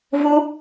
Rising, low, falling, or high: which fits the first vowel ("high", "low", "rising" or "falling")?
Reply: high